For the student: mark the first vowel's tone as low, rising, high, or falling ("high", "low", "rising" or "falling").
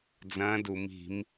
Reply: rising